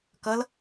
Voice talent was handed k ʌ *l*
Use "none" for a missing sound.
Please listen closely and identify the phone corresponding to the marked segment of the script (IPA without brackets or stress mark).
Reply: l